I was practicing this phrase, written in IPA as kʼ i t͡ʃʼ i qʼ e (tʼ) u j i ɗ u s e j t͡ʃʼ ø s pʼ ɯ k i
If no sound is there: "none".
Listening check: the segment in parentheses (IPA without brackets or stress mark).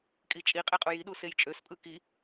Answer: qʼ